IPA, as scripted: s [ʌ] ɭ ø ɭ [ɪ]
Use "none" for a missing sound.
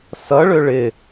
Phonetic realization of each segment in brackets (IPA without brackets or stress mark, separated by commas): ʌ, ɪ